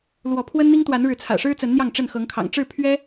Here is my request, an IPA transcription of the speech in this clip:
l w ɔ˨˦ pʰ w ə˦ n n̪ i˦ ŋ t̪ w a˨˦ n ɻ ɻ̩˨˦ t͡sʰ ä̰˨˩ ʂ ɻ̩˦ t͡s ə˨˦ n n̪ j ɑ˥˨ ŋ ʈ͡ʂ ə˥˨ n x ɤ˨˦ ŋ kʰ ɑ̰˨˩ ŋ ʈ͡ʂ ɻ̩˥˨ pʰ ɥ ɛ˦

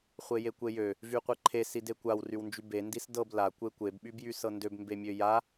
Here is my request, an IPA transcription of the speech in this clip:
χʷ e j e kʷ e j ø | v y qʷ e ǃʰ e s i d e kʷ a w r y w n d͡ʒ y b e n d i s d ɤ b l a kʷ e kʷ e b ɓ y b j y s ɤ n d ø b m b e mʲ ø j a

